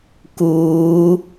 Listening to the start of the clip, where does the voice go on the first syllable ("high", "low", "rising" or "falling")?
rising